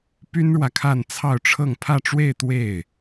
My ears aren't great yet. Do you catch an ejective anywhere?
no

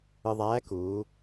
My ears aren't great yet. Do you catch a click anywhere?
no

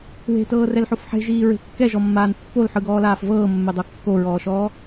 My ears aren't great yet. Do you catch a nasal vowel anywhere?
no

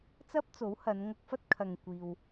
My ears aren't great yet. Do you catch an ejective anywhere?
no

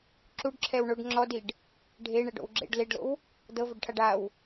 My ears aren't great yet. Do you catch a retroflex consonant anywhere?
yes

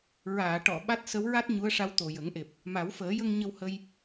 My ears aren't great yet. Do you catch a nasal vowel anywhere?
no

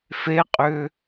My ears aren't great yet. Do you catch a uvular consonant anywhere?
yes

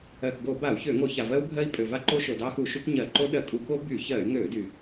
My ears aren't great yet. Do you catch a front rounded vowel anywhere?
yes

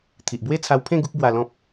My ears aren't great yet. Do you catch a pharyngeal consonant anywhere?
no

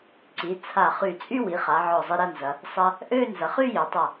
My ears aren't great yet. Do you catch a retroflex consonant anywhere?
no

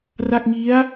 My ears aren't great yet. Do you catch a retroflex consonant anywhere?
no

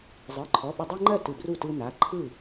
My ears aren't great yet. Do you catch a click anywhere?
yes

